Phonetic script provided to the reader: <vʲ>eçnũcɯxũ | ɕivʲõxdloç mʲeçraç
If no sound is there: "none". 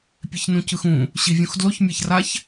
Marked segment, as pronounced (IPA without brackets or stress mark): pʲ